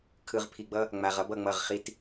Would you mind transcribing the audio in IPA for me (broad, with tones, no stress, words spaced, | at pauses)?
kʰɯ˨ʁpʰi˨ɡ͡bʌ˦ | ŋ͡ma˨ʁʌ˦b ʌ˨ŋ͡mʌ˦˨ʁχi˦t